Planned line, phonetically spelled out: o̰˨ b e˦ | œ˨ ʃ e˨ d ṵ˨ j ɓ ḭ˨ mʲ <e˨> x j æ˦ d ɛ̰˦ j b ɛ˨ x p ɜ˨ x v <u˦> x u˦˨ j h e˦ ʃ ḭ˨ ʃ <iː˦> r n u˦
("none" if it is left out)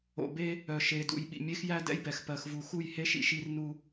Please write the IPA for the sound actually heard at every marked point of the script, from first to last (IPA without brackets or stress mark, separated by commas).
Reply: e˦, u˨, i˦